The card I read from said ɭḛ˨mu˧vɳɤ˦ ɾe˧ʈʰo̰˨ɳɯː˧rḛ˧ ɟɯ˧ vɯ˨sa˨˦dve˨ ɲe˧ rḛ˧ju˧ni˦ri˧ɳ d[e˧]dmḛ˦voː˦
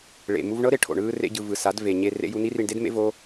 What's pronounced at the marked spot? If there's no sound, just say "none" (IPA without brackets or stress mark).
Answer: e˦